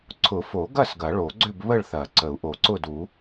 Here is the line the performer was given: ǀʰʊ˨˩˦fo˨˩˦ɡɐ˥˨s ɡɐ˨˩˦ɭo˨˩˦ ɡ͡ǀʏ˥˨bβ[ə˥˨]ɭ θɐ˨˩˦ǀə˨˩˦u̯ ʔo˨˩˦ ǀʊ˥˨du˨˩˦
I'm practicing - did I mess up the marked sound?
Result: no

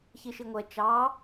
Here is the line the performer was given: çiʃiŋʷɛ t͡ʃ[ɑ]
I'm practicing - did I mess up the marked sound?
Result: no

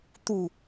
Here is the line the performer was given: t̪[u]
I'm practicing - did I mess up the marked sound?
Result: no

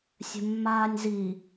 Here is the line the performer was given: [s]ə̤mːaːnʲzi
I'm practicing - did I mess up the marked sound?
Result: yes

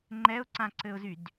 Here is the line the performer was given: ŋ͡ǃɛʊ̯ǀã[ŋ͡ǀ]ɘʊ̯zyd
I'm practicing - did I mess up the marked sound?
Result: yes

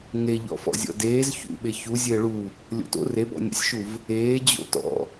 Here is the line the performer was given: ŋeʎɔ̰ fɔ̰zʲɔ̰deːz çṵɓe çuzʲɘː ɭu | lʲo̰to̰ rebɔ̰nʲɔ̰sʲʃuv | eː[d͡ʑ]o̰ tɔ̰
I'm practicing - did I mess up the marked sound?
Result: no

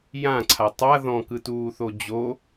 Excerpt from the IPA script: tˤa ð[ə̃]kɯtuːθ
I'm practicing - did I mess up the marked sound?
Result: yes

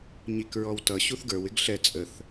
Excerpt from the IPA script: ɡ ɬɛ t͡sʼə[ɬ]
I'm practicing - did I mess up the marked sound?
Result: yes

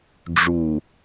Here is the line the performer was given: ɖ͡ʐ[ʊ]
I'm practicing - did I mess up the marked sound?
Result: yes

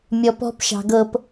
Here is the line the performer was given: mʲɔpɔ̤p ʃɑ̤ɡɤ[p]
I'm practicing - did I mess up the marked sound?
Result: no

